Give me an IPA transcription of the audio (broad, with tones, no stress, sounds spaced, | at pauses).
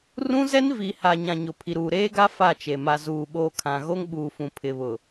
r ũ˦ z ɛ˦ n v i˨ h a˨ ɲ ã˨ ɲ ʊ˨ pʰ i˨ ɾ uː˨ ɾ eː˦ ɡ a˦ f a˦˨ t͡ʃ e˨ m a˨ z uː˨ ɓ o˨ kʰ ã˨ ɣ o˦ ŋ ɓ uː˨ f ũ˨ pʰ ɪ˨ β ʊ˨